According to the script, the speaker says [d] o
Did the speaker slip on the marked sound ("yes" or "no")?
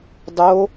yes